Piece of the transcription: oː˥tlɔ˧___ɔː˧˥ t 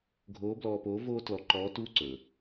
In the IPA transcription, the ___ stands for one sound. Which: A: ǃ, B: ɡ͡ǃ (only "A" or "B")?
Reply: A